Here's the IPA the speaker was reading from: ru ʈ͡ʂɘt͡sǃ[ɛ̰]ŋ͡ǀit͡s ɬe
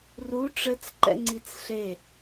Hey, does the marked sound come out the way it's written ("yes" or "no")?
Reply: yes